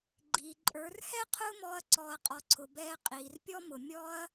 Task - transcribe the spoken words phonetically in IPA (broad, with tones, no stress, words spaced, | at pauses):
ɡ͡ǃiː˨ǃʼə˞˨˦r hɛ˦ qʰʊː˦mɔː˧ɐ̯ǀɔː˨ɐ̯ qʼɔ˨ǀʰʊ˨bɛː˧ qʼiː˨rpʲɔ˦mʊ˨ mʲɔ˦ɐ̯